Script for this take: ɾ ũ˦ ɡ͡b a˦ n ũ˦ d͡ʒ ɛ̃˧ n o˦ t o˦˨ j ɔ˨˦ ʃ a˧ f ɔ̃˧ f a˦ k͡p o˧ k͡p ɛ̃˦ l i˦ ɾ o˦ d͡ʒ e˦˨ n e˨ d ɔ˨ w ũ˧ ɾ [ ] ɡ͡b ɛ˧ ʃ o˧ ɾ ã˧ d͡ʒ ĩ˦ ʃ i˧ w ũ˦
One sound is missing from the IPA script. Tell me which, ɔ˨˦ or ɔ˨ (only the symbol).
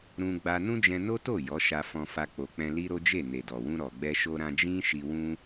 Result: ɔ˨